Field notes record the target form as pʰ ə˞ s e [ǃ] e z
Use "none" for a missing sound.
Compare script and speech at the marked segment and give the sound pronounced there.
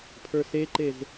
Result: ǃ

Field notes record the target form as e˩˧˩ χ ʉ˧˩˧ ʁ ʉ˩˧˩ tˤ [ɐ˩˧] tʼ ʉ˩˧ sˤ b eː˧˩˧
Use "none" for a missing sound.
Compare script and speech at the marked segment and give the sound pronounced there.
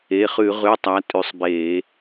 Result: a˩˧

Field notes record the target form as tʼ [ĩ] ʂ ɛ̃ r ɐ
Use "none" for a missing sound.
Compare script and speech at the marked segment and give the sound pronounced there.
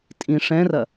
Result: ĩ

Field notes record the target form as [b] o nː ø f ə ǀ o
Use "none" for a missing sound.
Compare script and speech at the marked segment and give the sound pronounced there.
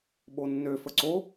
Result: ɓ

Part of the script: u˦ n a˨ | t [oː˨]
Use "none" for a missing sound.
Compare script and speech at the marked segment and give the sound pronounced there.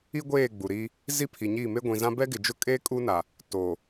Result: oː˨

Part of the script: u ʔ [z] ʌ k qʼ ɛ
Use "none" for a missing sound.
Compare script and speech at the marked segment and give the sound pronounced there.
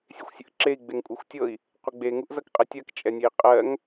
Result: z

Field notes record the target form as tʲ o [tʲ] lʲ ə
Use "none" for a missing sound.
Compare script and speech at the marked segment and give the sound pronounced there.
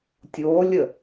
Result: none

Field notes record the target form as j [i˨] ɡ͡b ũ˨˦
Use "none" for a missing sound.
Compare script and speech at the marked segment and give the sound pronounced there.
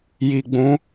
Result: i˨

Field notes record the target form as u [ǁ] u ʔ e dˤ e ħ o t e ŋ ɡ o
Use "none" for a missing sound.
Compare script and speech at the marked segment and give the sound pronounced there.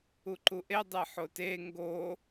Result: ǃ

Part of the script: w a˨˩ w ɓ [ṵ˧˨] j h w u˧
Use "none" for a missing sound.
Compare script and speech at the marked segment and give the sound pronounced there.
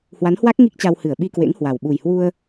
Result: u˨˩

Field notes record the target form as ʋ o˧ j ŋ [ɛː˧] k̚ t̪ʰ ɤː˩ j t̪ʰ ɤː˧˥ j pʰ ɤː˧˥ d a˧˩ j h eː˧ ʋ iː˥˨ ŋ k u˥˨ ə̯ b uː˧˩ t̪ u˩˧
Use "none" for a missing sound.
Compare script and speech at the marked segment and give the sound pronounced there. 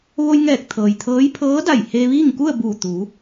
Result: ɛː˧˩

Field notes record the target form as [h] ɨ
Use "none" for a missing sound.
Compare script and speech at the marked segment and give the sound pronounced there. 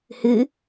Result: h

